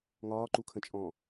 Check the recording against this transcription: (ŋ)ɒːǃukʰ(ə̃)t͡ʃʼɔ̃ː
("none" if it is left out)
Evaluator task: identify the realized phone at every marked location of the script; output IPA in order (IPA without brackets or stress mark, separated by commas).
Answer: ŋ, ə̃